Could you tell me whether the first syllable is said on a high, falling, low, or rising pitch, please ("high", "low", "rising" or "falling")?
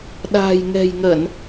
low